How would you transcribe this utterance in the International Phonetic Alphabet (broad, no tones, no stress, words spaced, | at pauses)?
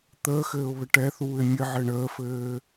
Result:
t̪əːxɘːʊ̯βɘ ʈɛθuːɪ̯ mʲɘʕɘ ɳəːfɘː